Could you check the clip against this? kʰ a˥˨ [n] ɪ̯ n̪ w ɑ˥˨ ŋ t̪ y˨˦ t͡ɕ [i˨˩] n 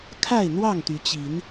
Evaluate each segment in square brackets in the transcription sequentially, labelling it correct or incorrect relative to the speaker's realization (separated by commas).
incorrect, incorrect